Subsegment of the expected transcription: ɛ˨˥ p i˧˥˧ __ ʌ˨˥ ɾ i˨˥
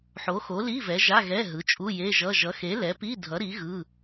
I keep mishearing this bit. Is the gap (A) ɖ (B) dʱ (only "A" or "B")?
B